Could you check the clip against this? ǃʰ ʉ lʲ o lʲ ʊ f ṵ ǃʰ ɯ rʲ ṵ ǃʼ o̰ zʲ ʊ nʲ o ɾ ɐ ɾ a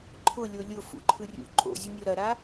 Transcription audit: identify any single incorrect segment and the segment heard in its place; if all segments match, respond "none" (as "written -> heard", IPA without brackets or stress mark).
ʉ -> ʊ